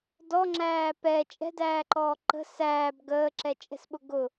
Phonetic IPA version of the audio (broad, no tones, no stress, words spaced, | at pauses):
dɔŋ͡ǁæː pɛ t͡ʃʼɛ̤dæːǃɔː ǃə̤ sæːb ɡəːǁɛt͡ʃʼɛ̤sɓʊ ɡʊ